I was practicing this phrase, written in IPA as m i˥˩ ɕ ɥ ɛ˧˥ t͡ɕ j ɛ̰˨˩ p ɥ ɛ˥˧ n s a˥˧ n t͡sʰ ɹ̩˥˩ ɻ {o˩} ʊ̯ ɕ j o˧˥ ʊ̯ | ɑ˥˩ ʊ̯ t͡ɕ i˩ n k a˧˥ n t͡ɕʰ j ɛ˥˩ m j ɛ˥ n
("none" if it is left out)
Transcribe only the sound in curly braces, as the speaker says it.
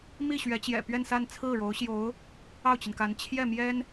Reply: o˧˥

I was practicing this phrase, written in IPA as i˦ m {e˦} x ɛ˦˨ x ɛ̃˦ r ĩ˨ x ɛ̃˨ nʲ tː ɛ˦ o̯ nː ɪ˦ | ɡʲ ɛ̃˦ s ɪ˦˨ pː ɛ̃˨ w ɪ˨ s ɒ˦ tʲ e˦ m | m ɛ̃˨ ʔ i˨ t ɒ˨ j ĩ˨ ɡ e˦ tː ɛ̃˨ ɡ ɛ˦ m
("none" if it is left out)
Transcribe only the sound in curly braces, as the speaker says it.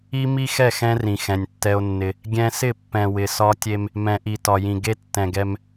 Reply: i˦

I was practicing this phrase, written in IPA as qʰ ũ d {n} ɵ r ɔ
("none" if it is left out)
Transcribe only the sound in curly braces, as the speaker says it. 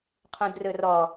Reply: r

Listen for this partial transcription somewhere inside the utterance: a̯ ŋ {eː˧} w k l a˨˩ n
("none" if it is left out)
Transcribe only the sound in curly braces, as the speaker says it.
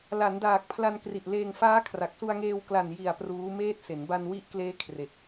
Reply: eː˧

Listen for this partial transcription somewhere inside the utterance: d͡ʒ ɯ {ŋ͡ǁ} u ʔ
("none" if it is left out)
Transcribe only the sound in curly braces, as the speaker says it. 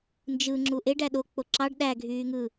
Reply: ŋ͡ǁ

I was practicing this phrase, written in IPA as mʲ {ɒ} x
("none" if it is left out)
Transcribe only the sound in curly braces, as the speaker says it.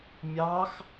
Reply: ɑ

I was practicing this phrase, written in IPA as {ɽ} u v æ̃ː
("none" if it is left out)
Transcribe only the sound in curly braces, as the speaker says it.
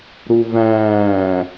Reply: ɾ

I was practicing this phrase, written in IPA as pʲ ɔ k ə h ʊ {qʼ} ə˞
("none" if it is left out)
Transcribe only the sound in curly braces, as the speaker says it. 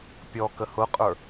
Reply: qʼ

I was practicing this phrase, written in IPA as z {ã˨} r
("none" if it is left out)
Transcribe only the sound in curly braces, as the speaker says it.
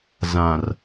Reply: ã˨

